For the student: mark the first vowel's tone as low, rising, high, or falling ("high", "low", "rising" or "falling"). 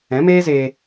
rising